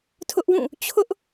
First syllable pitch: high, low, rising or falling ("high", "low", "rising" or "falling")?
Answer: high